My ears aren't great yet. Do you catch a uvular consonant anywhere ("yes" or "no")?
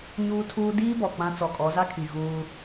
no